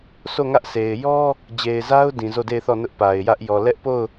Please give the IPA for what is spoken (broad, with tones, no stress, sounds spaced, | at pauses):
sʰ o˦˨ ŋ ä˦ ʔ sʰ e˨ ɪ̯ j ɔ˦ | d͡ʑ e˨ ɪ̯ z a˦ ʊ̯ d ĩ˨ z o˦˨ d e˦˨ ɪ̯ θ ɔ˦˨ n ʊ˦ ʔ p a˨ ɪ̯ j ä˦ ʔ j ɔ˨ l ɛ˦ ʔ p o˦˨ ʊ̯